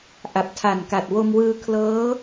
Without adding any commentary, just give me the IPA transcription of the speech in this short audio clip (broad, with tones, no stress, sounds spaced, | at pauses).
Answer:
ʔ a˨˩ p̚ tʰ a˨˩ n k a˨˩ t̚ w o˧ m w ɯː˧ kʰ l ɤː˦˥